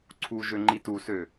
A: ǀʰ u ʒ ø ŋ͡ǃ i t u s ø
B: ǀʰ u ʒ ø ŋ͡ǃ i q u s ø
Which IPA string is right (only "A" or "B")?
A